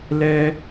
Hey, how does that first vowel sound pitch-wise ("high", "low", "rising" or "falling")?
high